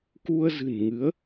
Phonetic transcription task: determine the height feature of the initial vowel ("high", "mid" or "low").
high